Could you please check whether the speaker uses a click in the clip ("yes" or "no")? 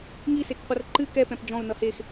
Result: yes